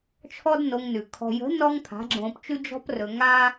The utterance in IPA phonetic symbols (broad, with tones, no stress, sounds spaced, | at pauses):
t͡ʃʰ ɔ˦ d n o˧ ŋ n ʉ˨ kʰ ɔ̤˨ j ə̤˨˦ n ɔ˦ ŋ pʰ a̤˨˦ ɡ͡ǁ õː˧ p t͡ʃ ʉ˦ d͡ʒ ɔ̤˧ p r ɵ˨ ŋ a˦